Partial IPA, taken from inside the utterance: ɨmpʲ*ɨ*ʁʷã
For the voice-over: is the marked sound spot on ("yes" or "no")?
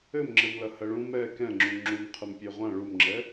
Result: no